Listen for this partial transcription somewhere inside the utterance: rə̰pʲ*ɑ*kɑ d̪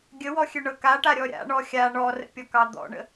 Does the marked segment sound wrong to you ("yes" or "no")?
yes